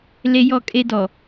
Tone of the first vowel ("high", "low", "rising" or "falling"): high